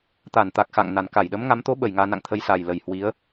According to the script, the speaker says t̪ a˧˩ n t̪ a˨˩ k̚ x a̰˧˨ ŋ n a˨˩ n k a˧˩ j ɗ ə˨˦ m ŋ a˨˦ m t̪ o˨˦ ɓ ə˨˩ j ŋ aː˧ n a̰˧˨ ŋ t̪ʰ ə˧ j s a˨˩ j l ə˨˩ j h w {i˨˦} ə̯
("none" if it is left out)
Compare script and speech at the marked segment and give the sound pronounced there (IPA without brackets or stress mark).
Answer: i˨˦